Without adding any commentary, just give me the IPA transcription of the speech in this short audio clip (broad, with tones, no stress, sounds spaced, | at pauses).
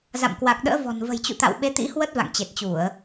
z a̰˧˨ m k w a˨˩ k̚ ɗ ə̰ː˧˥ v ɔ̤˨˩ n v ə̤˨˩ j t͡ɕ ṵ˧˨ t̪ a̰˧˨ w ɓ e˨˦ t̪ ḭ˧˥ h w ə˦˥ t̚ v a̰˧˨ ŋ t͡ɕ e˨˩ t̚ t͡ɕ u˧˩˨ ə̯